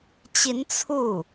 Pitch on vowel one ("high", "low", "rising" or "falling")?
rising